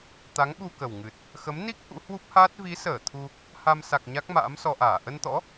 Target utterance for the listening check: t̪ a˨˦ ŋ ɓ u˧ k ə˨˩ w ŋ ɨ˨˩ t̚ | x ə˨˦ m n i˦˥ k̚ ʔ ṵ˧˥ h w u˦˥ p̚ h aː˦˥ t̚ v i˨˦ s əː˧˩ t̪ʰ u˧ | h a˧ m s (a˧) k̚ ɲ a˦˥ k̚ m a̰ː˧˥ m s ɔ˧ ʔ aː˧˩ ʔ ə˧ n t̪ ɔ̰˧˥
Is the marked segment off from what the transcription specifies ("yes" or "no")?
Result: yes